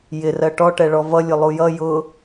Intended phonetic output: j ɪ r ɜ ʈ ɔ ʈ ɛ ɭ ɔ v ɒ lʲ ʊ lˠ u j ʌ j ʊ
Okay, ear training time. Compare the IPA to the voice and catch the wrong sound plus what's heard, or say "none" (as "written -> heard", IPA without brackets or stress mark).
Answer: ɒ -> ʌ